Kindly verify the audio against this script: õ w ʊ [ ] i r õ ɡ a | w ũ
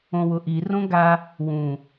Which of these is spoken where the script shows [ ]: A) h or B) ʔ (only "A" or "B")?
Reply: B